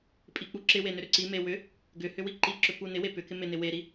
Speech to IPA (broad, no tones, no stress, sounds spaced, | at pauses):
pʼ i k͡p u ǁ ɪ w e n ʏ ɾ ʏ ǀ i m e w ʏ | ɡ ʏ h ʏ w i ǃ i ǁ ʏ p u n ɪ w e p ʏ k ɪ m ɪ n ɪ w e ɾ i